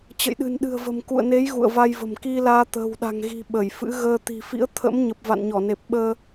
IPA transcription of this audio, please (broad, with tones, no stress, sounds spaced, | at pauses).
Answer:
t͡ɕ ə̰˧˨ j ɗ ɨ̤˨˩ n ɗ ɨ̤˨˩ ə̯ v ə̤˨˩ m k ṵ˧˨ ə̯ n e˨˦ j ɣ ṵ˧˨ ə̯ v a˧ j v ə̤˨˩ m k i˧ l aː˧ t̪ ə̤ː˨˩ w ɗ a̤˨˩ ŋ ɣ i̤˨˩ ɓ ə˧˩ j f ɨ̰˧˥ ɣ əː˧ t̪ i̤˨˩ f ḭ˧˥ ə̯ t̪ʰ ə̰˧˥ m ɲ ə˨˩ p̚ v a̰˧˨ n ɲ ɔ˧˩ n e˨˩ p̚ ɓ əː˧